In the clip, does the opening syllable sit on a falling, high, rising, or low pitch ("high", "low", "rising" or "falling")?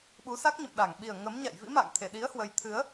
rising